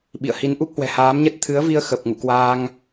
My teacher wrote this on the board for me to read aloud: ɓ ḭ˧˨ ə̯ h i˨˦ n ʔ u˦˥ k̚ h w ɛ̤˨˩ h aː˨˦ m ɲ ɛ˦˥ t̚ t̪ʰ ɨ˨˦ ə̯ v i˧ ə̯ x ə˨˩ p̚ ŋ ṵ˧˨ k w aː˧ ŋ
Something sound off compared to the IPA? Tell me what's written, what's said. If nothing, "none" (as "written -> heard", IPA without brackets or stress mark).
none